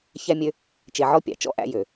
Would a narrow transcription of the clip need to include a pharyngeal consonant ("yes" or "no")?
yes